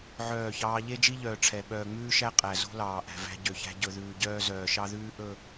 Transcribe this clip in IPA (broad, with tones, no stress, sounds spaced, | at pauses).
ʕ œː˦˨ ç ɑː˦ ʎ e˦ d͡ʒ i˦ ʎ œː˨ ʈ͡ʂʰ ɛ˨ ɓ œː˨ ŋ͡m ʉː˦ ʃ æ˦ qʼ æ˨ z o̤˦ l ɑː˨ ʔ æ̤˨ v æ̤˦ ɟ ø˨ ç æ̤˦ ɟ ɵ˨ ð ʉː˨ ɟ œː˦ z œː˨ ʃ ɑ˦ ð ʉː˦ ʔ ɵ˦˨